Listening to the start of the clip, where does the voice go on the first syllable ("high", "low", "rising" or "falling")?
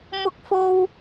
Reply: high